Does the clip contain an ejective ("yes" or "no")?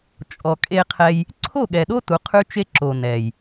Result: yes